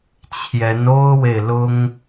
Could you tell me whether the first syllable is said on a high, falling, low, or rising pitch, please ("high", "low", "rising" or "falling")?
rising